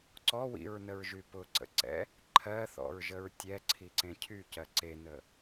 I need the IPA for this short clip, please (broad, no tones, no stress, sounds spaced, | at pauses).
ǀ ɔ w ḭ ɹ n ə ɹ ʒ y p ʊ ǀ ə̰ ǀ ɛ̰ | ǃʰ ɜ θ ɔ̰ ɹ ʒ ə ɹ tʲ ɛ ǀʰ i ǀ ẽ cʰ y c ɜ ǀ e n ə